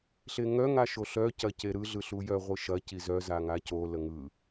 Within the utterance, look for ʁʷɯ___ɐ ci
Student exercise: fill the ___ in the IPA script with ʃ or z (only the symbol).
ʃ